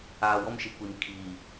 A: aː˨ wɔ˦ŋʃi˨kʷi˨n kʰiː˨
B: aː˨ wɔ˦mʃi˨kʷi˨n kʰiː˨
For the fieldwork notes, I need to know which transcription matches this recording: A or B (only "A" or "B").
B